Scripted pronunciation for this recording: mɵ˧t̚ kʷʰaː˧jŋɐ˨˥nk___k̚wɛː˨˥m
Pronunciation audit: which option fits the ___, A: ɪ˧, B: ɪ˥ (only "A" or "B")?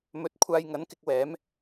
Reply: A